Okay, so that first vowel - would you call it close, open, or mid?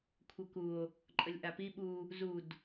mid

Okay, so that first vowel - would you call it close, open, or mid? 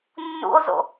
close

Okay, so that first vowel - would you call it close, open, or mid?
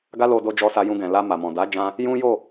open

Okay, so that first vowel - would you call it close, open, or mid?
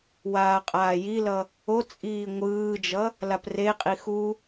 open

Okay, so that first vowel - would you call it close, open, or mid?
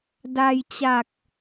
open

